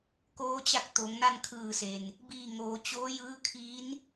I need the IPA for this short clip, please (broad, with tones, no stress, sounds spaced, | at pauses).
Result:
k oː˧˥ t͡ɕ a˧˥ k̚ t̪ o˩˧ ŋ n a˥˨ n kʰ ɯː˧˩ s e˩ n | b iː˧˩ ŋ oː˩˧ t͡ɕ oː˧˥ j ɯː˧˥ kʰ iː˧˥ n